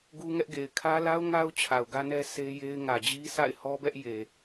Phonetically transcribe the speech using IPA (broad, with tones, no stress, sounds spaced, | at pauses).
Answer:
ɡ u˦ ŋ ɛ˦ ʔ ɡ e˨ ɪ̯ kʰ ä˦ l a˦ ʊ̯ ŋ a˦ ʊ̯ t͡ɕʰ a˨ ʊ̯ ɡ ä˦ n ɛ˦ s e˦ j e˦ ɪ̯ ŋ ä˨ d͡ʑ i˦ s a̰˦˨ ɪ̯ h ɔ˦ b ɛ˦ ʔ j e˨